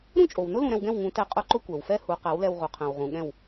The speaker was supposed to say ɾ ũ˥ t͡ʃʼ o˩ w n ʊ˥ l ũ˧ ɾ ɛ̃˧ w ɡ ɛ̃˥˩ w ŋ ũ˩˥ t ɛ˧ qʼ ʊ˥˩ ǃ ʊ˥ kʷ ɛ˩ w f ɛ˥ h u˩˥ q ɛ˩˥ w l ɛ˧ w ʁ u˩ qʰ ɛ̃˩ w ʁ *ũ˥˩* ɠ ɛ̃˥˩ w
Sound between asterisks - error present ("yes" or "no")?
yes